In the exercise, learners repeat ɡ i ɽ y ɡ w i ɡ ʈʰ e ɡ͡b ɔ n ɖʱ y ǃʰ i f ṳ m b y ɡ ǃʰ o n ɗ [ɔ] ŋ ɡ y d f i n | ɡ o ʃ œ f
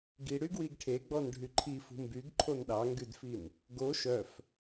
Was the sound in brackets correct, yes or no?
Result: no